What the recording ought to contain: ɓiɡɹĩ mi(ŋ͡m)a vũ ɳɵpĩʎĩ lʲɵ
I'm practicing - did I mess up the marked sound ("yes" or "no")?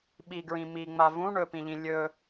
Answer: no